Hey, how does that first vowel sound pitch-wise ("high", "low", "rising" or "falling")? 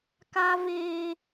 high